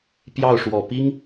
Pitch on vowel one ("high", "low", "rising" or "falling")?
falling